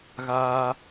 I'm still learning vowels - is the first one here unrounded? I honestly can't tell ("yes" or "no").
yes